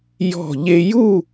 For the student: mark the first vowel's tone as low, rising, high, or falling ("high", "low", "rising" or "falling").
falling